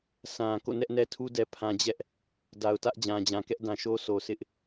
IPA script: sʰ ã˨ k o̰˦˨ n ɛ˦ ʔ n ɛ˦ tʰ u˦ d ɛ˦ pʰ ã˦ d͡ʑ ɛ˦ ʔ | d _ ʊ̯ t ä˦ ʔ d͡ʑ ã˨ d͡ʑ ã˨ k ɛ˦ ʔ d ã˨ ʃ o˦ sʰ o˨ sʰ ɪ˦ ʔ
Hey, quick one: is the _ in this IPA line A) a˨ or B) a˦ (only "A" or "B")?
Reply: A